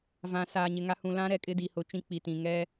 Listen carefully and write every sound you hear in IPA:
vã˨saː˨ɲɪ˨ŋa˦ hũ˨lã˦ɾɛ˨ kʼɪ˦di˨hʊ˨˦ t͡ʃĩ˦k͡pi˨ tĩ˨ ŋɛ˦

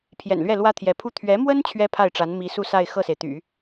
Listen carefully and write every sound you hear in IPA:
pʰjɛ̰˨˩nlɥɛ˥˩ lwä˥t̪ʰjɛ˧˥pʰu˥ t̪ʰɥɛ˧˥mwə˥n t͡ɕʰɥɛ˥pʰa˥˩ɪ̯ʈ͡ʂa˧˥n mi˧˥su˥˧sa˥˧ɪ̯ xɤ˥˩se˩ɪ̯t̪y̰˨˩˦

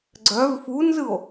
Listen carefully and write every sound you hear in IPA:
ɡ͡ǀœv funzɯo̯

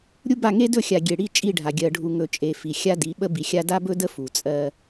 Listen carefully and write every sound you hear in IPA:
ɾʲu˦ba˦˨ŋe˦ dɵ˦˨xʲa˨ ɡʲe˨ɽi˦ t͡ʃʼi˦˨ɖʱa˨ ɡʲɜ˨ɖʱu˨ ŋɵ˨ t͡ʃʼe˨ fi˨xʲa˦di˨˦ ɓə˦bi˨xʲa˦ da˦bɵ˦də˦ fu˨t͡sʼɜ˦

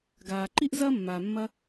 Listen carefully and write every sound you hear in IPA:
ɡaː˩ǃi˥ʔ zɐː˥mːaː˩ mːɐ˧

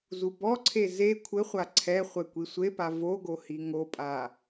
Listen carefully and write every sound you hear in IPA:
zubɔǀʰe ze kʷʰɘχʷa ǀʰɛ χʷɛkʷisʷepa voɡo hiŋopʼa

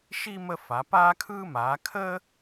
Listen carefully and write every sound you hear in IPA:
ʃi˥ mə˥fa˨˦ paː˥kʰɯː˥maː˨˦ kʰəː˥

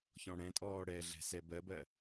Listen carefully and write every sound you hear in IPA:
çɔ̃ɽɛ̃tʼɔː ɽɛɮɛ̤sɛ bɜbɜ

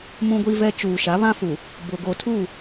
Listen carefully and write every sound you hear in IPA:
mũ˦ɡʷi˦vɛ˦ t͡ʃuː˨ʃa˨˦ βã˦fu˨ | bʊ˨ ɡo˨tʰu˦˨

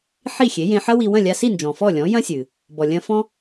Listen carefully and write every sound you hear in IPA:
ħi˥˩xʲe˩˥jẽ˧ ħɐ˥wi˧ wɐ̃˥˩lʲa˧si˥˩nd͡ʒɔ̃˩ fɔ˥˩lʲɔ̃˩˥jɐ̃˥sʲɨ˩ | bɔ˩lʲɐ̃˧fɔ̃˥

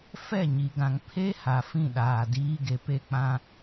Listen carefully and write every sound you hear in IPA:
fɛ˦˨ɲi˨ɡã˨ŋ pʰe˦ ha˨fĩ˦˨ɗaː˨ diː˦ɡe˨pe˦k͡pã˦

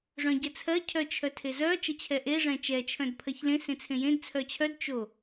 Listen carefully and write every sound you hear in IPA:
ʐœ̃ɟɛt͡sʰɜ cʰœt͡ʃʰœtʰezœ t͡ʃət͡ɕʰɛʔe ʐɛ̃t͡ʃɛ t͡ʃʰœ̃dpʰɜçlẽ sẽt͡sʰẽjẽd t͡sʰœt͡ɕʰœd t͡ʃo

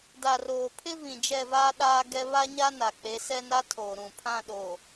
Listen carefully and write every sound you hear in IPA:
da˨roː˨pʰɪ˦ vĩ˨d͡ʒɛ˦˨vaː˦ ɗaː˦ɡɛ˦ βa˦ɲa˦na˨ k͡pe˨˦ sɛ˦na˦tʰoː˨ ɾũ˨ pʰã˦˨ɗoː˨

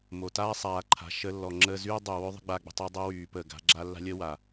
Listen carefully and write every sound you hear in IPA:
mo˨ taː˦sˤaː˨ǃʰa̤˨ ʃə˧lːɔ˨ ŋ͡ǁəː˧zyː˦ dˤy˨wø˦ðˤə̤˦ ɡ͡baː˧ɡ͡bə̤˧tˤo˦ dˤø˦wyː˨pəː˨ ɡa̤˨˦ɡ͡ǁa˦ lːa̤˦lʲəː˦wa˨

